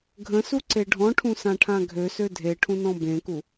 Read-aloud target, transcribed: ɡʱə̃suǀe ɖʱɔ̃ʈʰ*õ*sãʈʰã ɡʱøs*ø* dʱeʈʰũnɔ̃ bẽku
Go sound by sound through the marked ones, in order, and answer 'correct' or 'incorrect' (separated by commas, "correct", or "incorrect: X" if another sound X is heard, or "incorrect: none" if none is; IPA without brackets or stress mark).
incorrect: ũ, correct